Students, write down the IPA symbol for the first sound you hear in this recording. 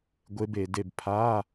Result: ɡʷ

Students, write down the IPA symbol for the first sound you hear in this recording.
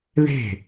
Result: ð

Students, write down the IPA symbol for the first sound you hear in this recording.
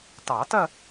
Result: t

